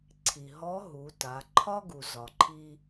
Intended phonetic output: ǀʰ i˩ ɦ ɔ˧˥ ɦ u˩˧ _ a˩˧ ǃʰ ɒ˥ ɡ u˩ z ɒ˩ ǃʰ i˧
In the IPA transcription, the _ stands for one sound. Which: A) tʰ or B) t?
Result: B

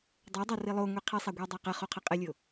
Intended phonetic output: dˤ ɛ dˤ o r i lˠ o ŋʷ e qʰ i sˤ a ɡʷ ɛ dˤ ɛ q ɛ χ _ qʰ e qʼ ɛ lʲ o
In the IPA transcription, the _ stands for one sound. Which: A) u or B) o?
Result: B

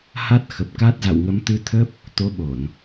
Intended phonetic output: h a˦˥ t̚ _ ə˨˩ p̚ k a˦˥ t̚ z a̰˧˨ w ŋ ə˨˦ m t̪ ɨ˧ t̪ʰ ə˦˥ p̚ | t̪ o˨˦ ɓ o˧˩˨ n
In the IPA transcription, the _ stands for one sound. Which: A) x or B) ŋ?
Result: A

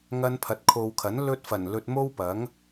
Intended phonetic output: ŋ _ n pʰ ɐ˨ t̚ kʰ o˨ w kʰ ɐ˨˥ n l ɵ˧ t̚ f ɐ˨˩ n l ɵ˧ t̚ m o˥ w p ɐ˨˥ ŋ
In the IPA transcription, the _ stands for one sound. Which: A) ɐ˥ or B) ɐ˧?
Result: B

